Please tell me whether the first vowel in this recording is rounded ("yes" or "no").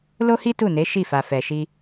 yes